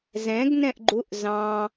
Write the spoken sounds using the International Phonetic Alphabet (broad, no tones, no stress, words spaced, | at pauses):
zɛ̃ɡ nɛ̃ʔɡ͡ǃuʔ zɑ̃